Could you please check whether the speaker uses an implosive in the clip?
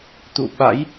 yes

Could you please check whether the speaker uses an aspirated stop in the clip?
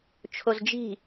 yes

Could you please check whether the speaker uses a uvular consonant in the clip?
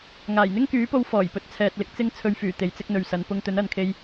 no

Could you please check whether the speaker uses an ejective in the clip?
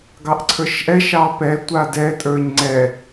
yes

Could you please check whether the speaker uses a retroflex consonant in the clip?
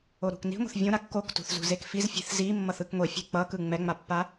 no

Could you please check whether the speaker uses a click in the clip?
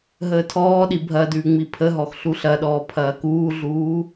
no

